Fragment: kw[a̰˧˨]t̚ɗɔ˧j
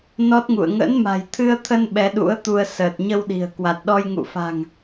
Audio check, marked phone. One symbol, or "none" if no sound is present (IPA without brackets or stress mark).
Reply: a˨˩